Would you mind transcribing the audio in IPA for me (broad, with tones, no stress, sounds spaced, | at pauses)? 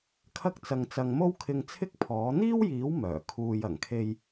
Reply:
kʰ ɐ˥ k̚ t͡s ɐ˧ ŋ t͡s ɐ˧ ŋ m o˥ w kʰ ɪ˧ ŋ t͡sʰ ɪ˥ k̚ pʰ ɔː˨˥ n̪ iː˥ w j iː˨˥ w m œː˨˩ kʰ uː˨ j ɐ˨˩ ŋ kʰ e˧ j